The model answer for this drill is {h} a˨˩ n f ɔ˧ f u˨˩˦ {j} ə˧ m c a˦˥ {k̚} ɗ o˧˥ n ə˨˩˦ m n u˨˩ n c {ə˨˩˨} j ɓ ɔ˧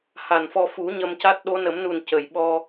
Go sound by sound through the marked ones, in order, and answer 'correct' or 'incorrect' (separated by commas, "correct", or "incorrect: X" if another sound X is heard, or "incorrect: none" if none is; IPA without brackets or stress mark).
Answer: correct, incorrect: ɲ, incorrect: t̚, correct